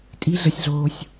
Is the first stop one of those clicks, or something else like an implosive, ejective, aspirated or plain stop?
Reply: ejective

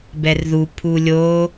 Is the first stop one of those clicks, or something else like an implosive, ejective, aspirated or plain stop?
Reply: plain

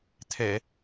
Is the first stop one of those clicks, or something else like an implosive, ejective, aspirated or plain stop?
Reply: aspirated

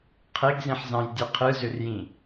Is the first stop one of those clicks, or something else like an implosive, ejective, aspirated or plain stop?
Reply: aspirated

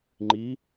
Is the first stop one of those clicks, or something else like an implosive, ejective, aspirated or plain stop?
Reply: click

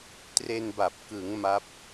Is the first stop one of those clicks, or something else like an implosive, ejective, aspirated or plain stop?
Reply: plain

